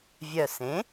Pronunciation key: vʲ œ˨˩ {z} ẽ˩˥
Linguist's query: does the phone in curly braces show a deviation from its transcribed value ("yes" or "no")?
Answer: yes